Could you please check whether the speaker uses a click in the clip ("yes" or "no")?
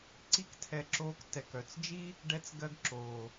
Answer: yes